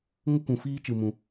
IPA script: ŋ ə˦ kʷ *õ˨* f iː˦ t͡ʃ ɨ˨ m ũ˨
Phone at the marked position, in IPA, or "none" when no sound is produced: ũ˨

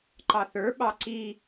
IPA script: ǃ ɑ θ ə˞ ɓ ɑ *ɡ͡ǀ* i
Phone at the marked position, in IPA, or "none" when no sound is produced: ǀ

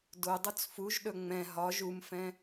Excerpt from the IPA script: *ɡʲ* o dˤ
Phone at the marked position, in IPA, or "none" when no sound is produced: d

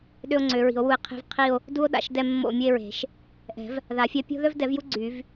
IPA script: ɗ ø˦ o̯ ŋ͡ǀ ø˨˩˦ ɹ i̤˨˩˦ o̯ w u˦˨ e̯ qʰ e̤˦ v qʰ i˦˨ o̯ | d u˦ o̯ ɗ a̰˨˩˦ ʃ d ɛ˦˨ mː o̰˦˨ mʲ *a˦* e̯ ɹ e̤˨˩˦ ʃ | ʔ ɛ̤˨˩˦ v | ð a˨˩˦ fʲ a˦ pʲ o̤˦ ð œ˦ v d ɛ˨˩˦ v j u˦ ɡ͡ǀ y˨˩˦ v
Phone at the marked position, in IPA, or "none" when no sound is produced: ə˦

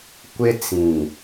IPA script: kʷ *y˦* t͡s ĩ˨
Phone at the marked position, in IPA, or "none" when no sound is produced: ɪ˦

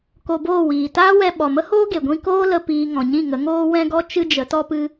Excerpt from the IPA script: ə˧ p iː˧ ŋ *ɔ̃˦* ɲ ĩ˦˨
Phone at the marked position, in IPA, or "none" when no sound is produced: ɔ̃˨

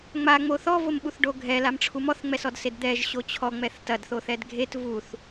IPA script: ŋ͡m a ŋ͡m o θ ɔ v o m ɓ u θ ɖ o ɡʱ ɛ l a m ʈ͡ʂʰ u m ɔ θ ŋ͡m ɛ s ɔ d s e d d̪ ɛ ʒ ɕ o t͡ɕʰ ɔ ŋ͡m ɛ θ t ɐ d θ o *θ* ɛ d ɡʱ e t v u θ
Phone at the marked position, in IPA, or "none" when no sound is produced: θ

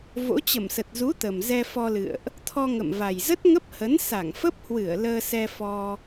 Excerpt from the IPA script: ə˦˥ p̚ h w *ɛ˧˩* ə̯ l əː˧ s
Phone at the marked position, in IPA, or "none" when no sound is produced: ɨ˧˩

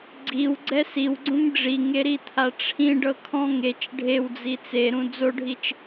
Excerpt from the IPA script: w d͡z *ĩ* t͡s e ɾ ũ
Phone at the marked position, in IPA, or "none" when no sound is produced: i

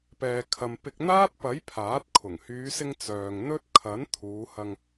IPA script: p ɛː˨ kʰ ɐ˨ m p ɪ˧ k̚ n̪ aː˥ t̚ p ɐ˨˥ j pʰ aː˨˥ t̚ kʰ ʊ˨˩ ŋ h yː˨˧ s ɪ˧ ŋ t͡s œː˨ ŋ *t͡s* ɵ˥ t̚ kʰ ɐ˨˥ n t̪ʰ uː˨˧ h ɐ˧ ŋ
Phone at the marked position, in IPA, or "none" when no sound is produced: n̪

